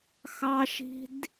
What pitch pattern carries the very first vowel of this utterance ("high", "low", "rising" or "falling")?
high